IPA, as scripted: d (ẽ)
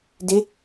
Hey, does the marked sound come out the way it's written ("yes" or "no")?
no